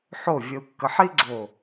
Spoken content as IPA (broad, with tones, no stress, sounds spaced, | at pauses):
ħ o˧˩ vʲ ə˧ u̯ kː ə˧ ħ i˥ ɡ͡ǀ o˧˩